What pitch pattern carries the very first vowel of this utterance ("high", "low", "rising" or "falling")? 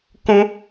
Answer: high